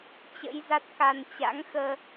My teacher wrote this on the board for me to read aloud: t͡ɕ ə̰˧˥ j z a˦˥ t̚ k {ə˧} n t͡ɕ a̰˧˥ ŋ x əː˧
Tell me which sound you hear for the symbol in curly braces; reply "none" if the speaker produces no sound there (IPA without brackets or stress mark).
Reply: a˧